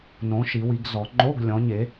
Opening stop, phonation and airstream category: plain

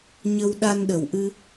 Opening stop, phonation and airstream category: implosive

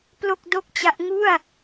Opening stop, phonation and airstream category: plain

